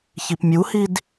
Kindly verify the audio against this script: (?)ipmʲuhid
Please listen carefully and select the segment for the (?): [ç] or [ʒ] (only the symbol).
ç